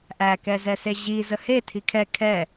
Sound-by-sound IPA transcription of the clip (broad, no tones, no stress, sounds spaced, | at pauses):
ʔ æ k ɛ z ɛ s e ʑ i z ə h e tʰ i kʰ ɛ kʰ ɛ